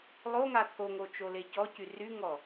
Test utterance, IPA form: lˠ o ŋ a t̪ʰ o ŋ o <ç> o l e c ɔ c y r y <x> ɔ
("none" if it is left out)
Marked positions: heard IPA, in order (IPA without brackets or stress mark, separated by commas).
t͡ʃ, ŋ